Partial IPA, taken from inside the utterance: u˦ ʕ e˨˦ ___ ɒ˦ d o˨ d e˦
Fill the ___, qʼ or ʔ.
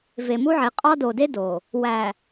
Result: qʼ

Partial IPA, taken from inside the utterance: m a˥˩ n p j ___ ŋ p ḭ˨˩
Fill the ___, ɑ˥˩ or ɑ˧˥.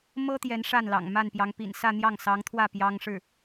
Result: ɑ˧˥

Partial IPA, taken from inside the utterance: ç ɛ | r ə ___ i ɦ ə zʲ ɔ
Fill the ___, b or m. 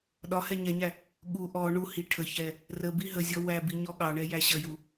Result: b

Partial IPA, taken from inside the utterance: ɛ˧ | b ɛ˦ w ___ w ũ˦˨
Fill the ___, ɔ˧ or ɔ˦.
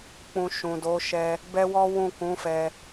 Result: ɔ˦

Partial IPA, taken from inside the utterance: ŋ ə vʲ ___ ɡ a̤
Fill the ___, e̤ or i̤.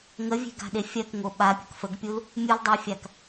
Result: e̤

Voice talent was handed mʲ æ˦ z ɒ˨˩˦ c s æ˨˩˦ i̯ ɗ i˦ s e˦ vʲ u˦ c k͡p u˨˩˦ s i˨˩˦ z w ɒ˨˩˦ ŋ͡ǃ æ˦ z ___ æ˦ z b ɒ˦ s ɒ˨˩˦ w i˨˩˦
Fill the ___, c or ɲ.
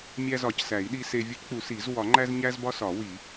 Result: ɲ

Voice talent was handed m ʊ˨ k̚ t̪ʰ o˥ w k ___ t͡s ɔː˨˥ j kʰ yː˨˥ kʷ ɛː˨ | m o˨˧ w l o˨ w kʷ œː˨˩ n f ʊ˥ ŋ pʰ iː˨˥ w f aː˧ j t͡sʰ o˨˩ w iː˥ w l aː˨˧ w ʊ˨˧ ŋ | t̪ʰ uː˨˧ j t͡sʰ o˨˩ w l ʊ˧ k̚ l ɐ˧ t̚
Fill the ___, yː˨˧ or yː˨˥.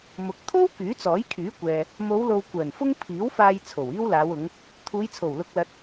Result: yː˨˥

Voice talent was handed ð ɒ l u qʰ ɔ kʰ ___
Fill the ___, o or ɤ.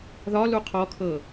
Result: ɤ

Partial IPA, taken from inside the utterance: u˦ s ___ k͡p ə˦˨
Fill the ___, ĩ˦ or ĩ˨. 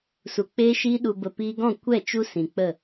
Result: ĩ˨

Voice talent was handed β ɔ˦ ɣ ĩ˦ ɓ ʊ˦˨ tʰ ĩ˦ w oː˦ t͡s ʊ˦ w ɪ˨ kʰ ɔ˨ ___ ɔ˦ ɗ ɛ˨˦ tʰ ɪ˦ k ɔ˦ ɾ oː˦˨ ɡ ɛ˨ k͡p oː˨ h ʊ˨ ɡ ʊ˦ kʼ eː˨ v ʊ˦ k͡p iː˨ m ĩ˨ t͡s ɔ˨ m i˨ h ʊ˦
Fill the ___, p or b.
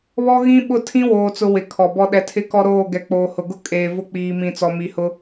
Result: b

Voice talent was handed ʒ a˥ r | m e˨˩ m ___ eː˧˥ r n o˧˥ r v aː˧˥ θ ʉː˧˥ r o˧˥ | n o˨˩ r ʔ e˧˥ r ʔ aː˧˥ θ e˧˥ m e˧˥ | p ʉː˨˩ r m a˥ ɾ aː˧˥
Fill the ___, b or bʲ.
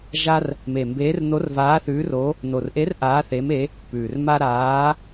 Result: b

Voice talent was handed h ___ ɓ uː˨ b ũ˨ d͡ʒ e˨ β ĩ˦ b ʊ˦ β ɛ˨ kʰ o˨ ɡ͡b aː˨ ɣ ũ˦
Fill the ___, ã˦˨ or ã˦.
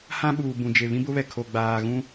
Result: ã˦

